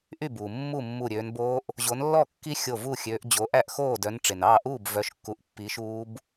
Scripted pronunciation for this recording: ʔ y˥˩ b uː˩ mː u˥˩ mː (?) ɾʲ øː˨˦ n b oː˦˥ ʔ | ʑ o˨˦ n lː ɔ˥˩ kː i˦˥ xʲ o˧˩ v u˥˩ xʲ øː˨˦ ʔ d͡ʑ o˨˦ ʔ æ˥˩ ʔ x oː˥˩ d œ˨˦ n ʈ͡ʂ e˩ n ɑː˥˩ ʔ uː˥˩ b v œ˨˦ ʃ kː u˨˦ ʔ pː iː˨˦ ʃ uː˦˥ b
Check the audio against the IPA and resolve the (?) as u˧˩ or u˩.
u˧˩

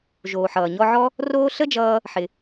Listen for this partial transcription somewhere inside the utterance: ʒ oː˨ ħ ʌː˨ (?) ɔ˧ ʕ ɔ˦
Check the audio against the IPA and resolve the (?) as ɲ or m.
ɲ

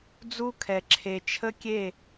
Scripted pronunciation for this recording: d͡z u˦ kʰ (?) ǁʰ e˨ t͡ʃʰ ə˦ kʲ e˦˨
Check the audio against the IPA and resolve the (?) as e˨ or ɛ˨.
ɛ˨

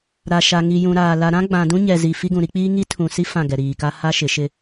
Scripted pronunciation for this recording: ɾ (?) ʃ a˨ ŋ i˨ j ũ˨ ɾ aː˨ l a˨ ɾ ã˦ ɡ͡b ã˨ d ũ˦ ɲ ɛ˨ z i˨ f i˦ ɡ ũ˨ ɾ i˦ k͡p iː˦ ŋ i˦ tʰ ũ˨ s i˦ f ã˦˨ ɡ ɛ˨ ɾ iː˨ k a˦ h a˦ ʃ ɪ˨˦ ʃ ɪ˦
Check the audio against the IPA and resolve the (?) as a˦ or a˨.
a˨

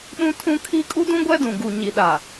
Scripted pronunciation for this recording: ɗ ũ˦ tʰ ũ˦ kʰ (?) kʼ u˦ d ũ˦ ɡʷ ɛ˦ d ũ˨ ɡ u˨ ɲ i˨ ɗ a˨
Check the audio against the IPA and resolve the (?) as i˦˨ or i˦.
i˦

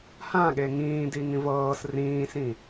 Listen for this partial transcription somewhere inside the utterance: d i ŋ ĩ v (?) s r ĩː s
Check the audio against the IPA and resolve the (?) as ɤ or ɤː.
ɤː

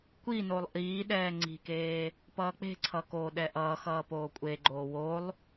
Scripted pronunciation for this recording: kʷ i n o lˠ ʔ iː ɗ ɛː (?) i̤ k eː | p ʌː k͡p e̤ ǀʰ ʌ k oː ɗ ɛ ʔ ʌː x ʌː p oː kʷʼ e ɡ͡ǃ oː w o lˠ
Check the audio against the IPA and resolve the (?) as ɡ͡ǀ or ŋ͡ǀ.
ŋ͡ǀ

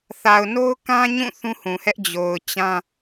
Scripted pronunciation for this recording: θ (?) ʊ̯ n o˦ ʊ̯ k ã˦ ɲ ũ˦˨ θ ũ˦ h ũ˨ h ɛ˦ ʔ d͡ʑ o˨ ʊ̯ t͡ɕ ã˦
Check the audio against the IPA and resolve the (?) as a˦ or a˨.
a˨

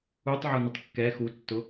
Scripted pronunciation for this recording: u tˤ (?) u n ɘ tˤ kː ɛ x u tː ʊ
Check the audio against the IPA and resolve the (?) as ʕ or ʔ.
ʕ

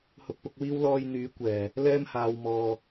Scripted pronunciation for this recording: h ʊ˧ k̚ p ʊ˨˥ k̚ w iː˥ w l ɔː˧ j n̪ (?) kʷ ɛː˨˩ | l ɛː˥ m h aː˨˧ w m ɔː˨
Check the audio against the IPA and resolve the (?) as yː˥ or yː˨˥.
yː˨˥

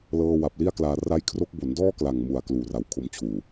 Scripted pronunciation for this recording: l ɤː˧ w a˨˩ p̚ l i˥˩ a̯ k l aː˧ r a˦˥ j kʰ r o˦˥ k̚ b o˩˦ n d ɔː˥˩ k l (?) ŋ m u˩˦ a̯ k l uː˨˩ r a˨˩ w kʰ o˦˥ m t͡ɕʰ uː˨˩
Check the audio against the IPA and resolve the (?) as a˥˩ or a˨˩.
a˨˩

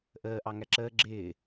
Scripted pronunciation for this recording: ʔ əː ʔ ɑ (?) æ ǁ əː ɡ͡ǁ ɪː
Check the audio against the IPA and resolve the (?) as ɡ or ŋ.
ŋ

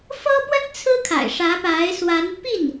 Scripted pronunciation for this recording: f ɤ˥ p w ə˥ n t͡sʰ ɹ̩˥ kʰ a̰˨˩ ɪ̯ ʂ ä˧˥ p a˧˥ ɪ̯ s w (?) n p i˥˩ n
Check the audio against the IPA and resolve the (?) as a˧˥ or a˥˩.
a˧˥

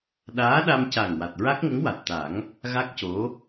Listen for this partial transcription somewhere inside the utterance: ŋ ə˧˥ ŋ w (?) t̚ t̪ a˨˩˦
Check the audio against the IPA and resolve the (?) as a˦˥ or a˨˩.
a˨˩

